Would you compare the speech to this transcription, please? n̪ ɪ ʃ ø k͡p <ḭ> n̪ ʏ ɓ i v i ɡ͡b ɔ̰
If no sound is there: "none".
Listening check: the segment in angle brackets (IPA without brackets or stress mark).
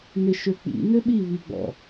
ḭ